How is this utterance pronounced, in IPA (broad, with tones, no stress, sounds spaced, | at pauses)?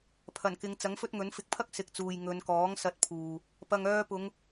pʰ ɐ˨˩ n k ɪ˨˧ ŋ t͡s ɐ˨˥ ŋ f ɵ˥ t̚ ŋ ɵ˨˥ n f ɪ˧ k̚ pʰ ɐ˥ k̚ s ɪ˨˥ k̚ t͡s uː˨ j ŋ ɵ˨˧ n k ɔː˨˥ ŋ s ɐ˧ t̚ pʰ uː˨ | p ɐ˨ ŋ œː˧ p ʊ˨˧ ŋ